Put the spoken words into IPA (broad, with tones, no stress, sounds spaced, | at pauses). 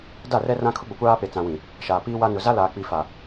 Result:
d a˦˨ r ɛ˦ r ã˦ kʰ ʊ˦ ɡ͡b ʊ˨ kʷ aː˦ p e˨ t͡s ã˨ w ĩ˨ | ʃ aː˨ p iː˦ w a˦ n ʊ˨ z a˦ l aː˨ k͡p i˨ f a˨